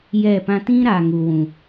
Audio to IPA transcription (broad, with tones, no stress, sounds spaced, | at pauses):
j ɛ˦˨ p ã˦ t ĩ˦ ɾ a˨ ŋ u˨ w ũ˨